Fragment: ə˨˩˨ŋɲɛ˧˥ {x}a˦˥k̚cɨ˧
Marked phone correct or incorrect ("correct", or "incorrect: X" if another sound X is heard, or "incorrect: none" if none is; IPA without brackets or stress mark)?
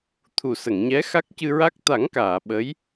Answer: correct